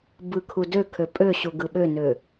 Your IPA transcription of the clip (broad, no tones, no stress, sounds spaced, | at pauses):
b ɯ kʰ u d ø kʰ ø pʼ ø ɕ u ɡ ɯ ɓ ø n ø